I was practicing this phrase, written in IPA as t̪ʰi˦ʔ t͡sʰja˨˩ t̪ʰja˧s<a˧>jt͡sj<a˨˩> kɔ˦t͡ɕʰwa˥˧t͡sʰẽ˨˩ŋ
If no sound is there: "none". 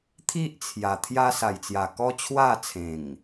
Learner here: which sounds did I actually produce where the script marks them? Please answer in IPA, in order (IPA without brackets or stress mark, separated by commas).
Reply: a˨˩, a˨˩